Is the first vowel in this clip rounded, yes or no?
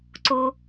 yes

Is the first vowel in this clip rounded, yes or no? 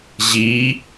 no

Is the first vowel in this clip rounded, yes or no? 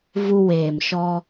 yes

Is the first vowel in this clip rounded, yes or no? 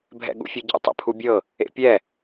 no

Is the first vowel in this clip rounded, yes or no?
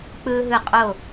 no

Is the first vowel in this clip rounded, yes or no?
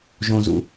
yes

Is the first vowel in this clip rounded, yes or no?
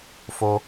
yes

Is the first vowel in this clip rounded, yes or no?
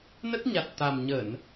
no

